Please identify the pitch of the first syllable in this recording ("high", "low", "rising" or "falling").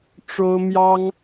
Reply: high